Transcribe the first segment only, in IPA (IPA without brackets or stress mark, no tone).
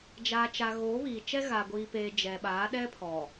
d͡ʒ